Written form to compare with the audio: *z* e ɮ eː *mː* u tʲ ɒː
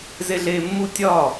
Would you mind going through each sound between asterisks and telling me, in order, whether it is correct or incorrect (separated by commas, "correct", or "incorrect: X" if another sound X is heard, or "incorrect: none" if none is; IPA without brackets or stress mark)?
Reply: correct, correct